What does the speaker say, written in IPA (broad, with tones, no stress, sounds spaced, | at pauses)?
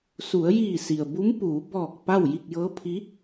s u˩˧ ə̯ j iː˧˩ s i˩ ə̯ b u˧˥ m p uː˩˧ b ɔː˧˩ k̚ p a˥˨ w j i˥˨ k̚ j ɤː˧˥ pʰ i˧˥